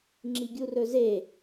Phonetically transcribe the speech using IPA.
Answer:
ŋ͡ǁ i ɡʲ u r ɵ z e

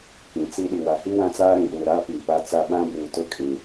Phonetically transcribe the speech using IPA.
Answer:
k ĩ˨ t͡s i˦ ɗ i˨ w a˨ h i˦ w ã˦ t͡s aː˦ ɾ ĩ˨ ɗ uː˨ ɾ aː˦ p iː˨ p a˦ t͡s a˦ ɓ ã˦ b uː˨ t ʊ˦ kʼ ĩ˨

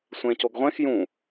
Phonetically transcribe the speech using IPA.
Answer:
sʷ ẽ c o ɡ ʁʷ ẽ x j ũ

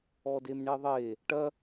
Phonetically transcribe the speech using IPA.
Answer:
ɔ d e m ɳ e ðˤ e | ʈ ɐ

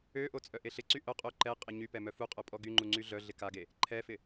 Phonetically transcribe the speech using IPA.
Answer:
ø ʔ o t͡sʼ œ ʔ e ɬ ɪ ǀ y ʔ œ qʼ o ǃ ɛ qʼ ɪ ɲ y p ɛ m œ f u qʼ œ pʼ ɔ ɡ y ŋ͡ǃ u ŋ͡ǀ y ɮ œ ɮ ɪ k a ɡ e | ǃʰ ɛ f ɪ

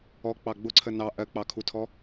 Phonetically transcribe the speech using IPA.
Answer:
ɔ k͡p ɑ ɡ͡b ʊ ǀʰ ə n ɑ ʔ ɜ k͡p ɑ kʰ u tʰ ɔ

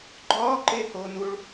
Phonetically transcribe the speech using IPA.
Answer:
ɡ͡ǃ ɒː ǃ e h oː n u ɭ

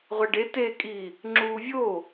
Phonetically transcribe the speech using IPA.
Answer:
ʁʷ æ ɖ e t e kʼ i | ŋ͡ǁ uː vʲ o

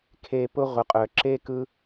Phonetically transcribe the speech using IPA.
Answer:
kʰ e˧ p ʊ˧ ʁʷ ə˨ qʼ œ˨ ǁ e˦ k ɯ˦

